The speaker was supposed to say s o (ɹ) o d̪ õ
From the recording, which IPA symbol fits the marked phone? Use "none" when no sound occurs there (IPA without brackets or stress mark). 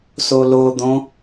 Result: l